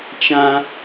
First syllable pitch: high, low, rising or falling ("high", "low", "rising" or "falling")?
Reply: high